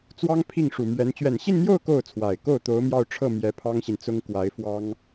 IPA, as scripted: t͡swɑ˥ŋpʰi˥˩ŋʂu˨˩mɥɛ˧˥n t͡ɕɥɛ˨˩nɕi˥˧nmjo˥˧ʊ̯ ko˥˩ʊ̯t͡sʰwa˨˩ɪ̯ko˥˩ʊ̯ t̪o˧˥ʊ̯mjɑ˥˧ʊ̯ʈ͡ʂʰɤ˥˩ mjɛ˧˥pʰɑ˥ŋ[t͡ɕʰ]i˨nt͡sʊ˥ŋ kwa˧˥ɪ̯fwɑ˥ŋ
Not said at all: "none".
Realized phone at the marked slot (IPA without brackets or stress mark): ɕ